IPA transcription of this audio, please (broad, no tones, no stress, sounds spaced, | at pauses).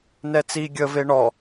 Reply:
n ɛ t͡s i ɡʲ ə v e ɳ ɔ